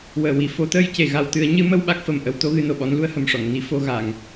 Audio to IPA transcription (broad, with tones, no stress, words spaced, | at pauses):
wəː˨˩wi˨˩ fo˨˩˦t̪əː˧jce˨˩ ɣa˨˩wt̪ɨ˨˩˦ə̯ɲɨ˧˥mə˧w ɓa˦˥k̚fə˨˩mʔə˧˥w t̪o˧˥ɣɨ˧no˨˩ɓɔ˧˥n lu˧ə̯hə˨˩mʂɔ˨˩˨ŋ ni˧ fo˧ɣa˨˩˨ŋ